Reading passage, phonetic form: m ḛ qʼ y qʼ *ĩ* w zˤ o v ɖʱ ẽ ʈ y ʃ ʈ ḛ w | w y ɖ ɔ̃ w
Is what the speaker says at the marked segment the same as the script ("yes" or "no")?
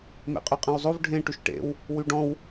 no